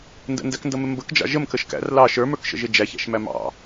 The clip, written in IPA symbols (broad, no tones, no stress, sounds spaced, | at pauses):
n d ə̰ n d æ k n d ʌ m ɪ m b ə k d͡ʒ ɑ̰ ʒ ə m k ə ʃ k æ̰ r l ɑ ʃ ə˞ m ə˞ k ʃ ə̰ ʒ ɪ d͡ʒ æ ç æ̰ ʃ m æ m ɑ̰